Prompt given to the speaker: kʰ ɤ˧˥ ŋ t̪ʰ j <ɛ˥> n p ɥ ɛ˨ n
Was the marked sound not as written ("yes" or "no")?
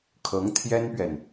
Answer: no